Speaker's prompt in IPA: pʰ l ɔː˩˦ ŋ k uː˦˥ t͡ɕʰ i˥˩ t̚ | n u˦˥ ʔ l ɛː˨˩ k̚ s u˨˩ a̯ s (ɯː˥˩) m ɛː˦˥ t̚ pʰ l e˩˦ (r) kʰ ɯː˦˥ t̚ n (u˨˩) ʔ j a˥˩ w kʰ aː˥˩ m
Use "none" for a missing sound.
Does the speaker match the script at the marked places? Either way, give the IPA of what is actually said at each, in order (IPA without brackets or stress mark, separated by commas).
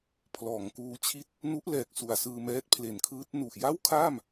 ɯː˧, n, u˨˩